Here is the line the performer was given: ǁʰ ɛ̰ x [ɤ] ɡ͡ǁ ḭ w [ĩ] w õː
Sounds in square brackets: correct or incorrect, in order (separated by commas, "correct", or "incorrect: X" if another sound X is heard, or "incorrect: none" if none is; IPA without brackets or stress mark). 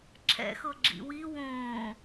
correct, incorrect: i